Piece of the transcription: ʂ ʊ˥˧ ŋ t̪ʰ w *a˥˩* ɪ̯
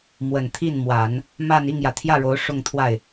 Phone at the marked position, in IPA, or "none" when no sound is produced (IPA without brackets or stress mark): a˥˩